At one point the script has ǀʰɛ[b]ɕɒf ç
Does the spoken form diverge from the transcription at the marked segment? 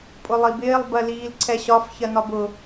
yes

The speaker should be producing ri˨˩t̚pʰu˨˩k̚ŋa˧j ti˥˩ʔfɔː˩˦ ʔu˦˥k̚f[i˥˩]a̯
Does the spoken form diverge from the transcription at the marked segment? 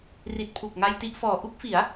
yes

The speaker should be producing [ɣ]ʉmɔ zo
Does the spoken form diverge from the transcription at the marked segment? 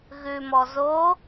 no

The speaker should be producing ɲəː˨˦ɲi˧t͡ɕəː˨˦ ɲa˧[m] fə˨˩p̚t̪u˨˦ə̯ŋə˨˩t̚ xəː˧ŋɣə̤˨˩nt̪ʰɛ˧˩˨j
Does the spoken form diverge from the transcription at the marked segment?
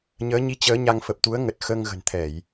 yes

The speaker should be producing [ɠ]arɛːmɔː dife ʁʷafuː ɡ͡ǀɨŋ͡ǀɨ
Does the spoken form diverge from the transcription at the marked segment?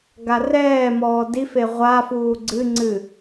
yes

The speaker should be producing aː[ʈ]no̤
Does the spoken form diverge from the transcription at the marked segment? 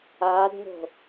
yes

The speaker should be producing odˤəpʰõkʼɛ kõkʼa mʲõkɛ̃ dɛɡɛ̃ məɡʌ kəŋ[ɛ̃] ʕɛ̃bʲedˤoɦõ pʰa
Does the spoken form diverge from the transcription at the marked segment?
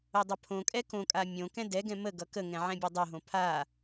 no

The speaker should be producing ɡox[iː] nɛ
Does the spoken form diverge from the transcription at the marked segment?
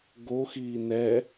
no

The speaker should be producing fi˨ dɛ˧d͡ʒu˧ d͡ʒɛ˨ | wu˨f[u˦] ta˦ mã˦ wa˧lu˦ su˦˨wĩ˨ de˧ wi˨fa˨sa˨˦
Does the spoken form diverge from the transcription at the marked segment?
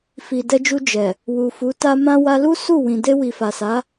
yes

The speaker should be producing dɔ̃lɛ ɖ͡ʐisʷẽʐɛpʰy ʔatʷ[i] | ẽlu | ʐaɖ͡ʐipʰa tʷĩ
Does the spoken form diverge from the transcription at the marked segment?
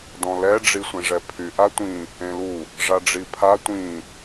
yes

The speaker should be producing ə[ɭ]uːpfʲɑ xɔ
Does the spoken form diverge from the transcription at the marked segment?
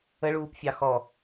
no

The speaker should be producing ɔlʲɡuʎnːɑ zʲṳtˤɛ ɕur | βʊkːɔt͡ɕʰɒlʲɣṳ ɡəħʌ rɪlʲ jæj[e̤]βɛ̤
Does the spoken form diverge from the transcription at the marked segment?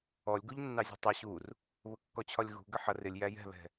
yes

